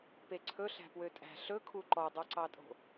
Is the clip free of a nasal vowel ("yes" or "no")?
yes